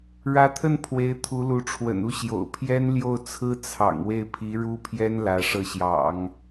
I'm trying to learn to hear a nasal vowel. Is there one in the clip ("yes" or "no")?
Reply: no